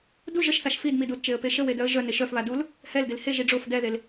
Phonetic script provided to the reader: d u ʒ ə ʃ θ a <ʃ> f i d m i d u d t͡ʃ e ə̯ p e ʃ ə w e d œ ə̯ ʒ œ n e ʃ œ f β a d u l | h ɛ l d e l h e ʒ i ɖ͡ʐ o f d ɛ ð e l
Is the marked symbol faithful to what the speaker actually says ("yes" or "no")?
yes